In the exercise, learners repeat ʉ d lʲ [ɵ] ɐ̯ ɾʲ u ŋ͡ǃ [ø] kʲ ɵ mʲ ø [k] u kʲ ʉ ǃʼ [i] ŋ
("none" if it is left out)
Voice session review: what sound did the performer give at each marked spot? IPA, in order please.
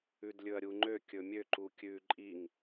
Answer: ɵ, ø, ǃ, i

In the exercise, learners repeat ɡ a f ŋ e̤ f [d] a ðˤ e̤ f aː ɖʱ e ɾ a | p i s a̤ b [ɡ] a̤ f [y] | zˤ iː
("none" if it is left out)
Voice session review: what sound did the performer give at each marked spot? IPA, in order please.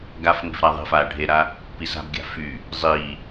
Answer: ɾ, ɡʲ, y

